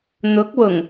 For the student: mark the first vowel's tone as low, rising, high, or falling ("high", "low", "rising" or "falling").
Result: rising